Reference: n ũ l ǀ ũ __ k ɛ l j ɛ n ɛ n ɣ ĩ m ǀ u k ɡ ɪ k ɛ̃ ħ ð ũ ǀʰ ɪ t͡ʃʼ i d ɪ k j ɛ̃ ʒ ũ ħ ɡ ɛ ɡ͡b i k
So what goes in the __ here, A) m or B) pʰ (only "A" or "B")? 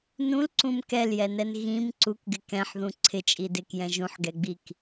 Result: A